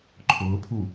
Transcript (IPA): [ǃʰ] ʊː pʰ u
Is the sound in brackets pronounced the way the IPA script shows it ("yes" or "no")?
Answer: yes